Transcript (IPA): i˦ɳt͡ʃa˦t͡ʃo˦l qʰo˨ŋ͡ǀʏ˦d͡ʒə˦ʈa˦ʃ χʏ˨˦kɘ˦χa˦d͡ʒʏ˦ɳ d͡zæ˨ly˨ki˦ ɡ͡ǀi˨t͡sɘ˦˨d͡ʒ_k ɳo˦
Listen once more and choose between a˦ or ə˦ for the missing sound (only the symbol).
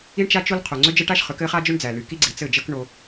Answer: ə˦